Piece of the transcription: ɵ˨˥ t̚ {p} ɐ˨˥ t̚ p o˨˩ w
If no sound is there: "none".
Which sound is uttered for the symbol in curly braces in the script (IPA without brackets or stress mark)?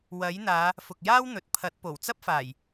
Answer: pʰ